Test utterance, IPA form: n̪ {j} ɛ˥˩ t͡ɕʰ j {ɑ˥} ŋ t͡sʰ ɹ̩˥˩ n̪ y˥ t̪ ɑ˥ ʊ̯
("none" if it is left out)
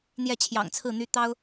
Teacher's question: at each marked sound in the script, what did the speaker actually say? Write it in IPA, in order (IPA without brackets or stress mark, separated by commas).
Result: j, ɑ̰˨˩